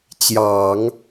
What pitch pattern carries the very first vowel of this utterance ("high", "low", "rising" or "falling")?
low